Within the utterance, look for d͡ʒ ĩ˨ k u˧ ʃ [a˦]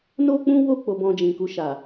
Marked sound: incorrect: a˨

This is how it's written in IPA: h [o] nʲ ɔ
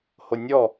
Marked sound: correct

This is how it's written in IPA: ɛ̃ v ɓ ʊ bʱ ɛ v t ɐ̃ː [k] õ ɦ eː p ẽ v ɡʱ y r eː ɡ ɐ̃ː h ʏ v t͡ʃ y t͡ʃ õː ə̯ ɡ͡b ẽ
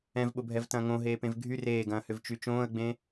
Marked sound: incorrect: ŋ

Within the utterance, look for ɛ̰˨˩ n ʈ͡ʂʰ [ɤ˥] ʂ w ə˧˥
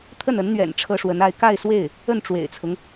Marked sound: correct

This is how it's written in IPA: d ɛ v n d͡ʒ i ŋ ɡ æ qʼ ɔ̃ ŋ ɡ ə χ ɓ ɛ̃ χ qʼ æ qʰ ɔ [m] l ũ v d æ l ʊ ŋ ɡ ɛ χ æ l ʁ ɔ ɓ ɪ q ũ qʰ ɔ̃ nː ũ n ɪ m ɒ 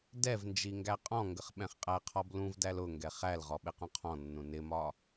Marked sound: incorrect: b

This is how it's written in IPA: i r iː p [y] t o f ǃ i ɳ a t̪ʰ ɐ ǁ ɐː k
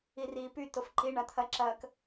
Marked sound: correct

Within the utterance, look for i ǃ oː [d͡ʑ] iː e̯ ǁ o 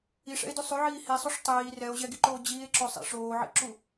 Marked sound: correct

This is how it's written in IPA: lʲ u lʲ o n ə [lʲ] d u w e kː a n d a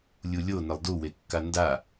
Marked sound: incorrect: lˠ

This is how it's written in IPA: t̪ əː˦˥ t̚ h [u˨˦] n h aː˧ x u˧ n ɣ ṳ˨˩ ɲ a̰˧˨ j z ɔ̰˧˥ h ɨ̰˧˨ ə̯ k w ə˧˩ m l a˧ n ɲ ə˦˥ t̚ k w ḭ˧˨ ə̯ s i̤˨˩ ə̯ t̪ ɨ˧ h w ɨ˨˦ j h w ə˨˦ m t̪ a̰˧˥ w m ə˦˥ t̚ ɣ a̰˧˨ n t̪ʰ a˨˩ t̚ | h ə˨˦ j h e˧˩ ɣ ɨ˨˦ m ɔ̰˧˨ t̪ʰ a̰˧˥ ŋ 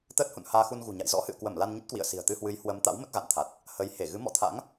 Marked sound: incorrect: ṵ˧˨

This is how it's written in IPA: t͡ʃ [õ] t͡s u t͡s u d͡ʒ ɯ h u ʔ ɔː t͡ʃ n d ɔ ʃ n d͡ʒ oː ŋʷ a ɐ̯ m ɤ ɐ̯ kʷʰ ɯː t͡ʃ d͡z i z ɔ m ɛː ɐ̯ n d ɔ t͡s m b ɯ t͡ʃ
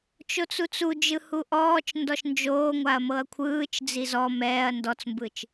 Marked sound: incorrect: o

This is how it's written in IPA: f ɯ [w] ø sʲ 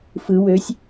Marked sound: correct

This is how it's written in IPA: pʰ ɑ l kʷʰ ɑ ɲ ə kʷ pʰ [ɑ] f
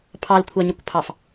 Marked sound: correct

